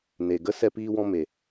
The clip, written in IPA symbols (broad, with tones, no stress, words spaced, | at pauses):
ne˨ɡə˧ sɛ˧piː˧wɔ̃˧me˨